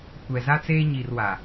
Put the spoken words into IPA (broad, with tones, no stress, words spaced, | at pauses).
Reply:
kʷɛ˨za˦t͡seː˦ ɲi˨r wa˨